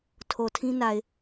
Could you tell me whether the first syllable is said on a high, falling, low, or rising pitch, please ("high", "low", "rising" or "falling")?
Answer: low